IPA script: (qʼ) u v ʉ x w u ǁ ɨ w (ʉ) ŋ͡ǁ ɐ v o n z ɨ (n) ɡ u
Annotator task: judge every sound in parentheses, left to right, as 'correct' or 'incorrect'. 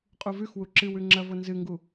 correct, correct, incorrect: ŋ

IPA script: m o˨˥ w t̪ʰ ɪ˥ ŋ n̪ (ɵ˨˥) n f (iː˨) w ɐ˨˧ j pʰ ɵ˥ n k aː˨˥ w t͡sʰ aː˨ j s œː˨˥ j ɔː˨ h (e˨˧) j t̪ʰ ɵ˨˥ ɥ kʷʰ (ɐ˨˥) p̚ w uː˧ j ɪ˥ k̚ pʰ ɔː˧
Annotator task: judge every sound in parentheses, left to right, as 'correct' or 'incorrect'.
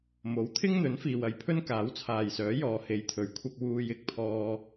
correct, correct, correct, incorrect: ɐ˧

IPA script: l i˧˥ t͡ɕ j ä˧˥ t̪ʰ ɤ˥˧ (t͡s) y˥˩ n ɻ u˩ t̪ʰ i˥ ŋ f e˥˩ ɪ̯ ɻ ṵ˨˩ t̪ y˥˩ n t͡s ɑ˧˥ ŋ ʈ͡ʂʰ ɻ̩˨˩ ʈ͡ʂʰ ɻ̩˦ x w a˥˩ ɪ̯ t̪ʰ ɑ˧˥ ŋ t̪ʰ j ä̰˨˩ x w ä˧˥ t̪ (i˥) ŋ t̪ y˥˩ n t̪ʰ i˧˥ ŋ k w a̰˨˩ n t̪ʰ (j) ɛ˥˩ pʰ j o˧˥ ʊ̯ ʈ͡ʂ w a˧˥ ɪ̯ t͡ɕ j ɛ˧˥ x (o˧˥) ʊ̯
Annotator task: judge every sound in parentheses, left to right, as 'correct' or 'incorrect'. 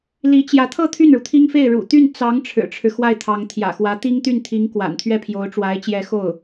incorrect: t̪ʰ, correct, incorrect: ɥ, incorrect: o˥˩

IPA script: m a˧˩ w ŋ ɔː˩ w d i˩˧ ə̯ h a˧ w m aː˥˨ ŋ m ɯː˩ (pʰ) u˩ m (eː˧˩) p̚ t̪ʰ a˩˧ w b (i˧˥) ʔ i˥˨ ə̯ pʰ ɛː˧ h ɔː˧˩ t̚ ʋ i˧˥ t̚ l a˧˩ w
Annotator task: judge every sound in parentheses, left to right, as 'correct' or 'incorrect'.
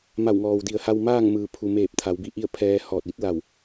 correct, correct, correct

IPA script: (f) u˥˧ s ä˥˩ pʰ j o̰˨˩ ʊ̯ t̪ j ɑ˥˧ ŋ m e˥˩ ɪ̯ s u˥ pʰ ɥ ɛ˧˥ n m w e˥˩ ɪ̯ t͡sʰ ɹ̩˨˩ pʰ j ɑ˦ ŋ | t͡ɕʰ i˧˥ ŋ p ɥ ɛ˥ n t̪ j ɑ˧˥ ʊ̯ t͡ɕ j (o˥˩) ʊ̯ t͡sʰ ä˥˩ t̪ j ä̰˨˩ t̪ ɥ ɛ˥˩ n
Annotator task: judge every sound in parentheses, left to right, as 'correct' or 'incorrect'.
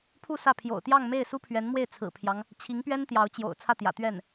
incorrect: pʰ, incorrect: o̰˨˩

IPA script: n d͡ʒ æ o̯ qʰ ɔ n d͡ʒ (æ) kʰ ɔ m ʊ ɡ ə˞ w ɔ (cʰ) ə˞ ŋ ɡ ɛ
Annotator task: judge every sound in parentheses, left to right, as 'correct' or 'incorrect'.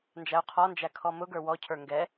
correct, correct

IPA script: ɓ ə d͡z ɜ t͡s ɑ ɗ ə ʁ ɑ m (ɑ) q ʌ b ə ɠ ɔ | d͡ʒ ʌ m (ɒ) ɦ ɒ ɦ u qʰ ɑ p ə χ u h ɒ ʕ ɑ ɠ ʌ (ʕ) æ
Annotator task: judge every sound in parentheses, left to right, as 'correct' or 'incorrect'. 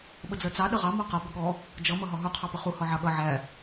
incorrect: ɔ, incorrect: ʌ, correct

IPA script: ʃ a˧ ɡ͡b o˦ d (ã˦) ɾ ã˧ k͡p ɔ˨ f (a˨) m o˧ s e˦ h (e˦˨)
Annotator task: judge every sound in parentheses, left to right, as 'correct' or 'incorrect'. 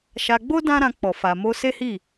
correct, correct, incorrect: i˦˨

